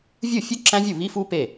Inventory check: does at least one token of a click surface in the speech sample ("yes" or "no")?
yes